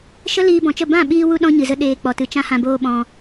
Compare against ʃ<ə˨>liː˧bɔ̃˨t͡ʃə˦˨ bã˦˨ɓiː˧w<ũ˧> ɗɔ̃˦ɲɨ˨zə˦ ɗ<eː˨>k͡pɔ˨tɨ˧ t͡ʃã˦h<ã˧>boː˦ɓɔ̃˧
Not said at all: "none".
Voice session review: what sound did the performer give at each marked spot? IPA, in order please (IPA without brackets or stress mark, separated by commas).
ə˦, u˧, eː˧, ã˧